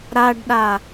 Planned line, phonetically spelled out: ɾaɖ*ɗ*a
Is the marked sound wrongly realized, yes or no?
no